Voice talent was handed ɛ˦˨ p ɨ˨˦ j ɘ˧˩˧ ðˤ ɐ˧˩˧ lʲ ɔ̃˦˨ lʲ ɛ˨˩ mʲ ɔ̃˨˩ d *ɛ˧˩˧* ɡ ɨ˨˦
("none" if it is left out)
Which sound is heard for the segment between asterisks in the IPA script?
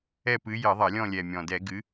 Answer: ɛ˧˩˧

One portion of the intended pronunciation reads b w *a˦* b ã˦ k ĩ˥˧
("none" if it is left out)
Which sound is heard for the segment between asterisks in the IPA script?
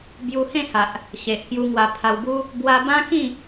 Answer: a˧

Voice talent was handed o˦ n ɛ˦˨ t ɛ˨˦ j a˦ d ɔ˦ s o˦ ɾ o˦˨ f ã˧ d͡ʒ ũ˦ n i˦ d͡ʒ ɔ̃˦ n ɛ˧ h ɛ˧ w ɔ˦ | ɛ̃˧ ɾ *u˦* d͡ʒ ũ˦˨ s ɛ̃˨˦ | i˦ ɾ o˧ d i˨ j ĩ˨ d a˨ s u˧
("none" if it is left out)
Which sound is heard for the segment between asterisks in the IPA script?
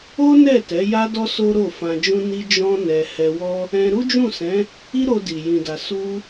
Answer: u˦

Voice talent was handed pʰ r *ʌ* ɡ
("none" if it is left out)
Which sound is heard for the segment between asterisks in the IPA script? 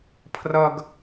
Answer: ʌ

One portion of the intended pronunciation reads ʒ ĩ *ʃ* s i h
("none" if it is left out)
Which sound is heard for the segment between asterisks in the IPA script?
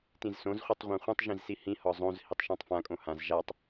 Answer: z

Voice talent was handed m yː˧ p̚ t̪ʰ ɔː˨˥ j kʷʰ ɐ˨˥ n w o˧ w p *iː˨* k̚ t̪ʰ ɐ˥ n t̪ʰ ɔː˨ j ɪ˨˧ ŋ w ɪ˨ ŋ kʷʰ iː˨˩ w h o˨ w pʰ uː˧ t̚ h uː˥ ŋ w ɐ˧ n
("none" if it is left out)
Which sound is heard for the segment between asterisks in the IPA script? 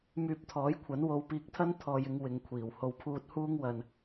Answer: iː˧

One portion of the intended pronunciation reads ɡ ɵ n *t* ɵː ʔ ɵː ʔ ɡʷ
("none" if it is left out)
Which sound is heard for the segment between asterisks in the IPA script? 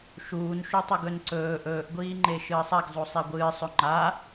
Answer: ǀ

